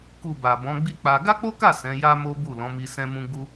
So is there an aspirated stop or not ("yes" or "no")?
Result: no